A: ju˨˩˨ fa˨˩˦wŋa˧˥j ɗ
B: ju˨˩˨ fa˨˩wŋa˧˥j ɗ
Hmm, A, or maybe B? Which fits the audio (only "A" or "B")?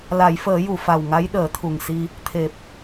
B